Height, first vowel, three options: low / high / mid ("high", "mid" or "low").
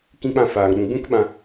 high